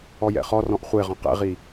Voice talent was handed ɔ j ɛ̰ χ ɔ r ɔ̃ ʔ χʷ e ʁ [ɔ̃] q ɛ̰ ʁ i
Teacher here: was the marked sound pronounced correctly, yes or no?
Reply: yes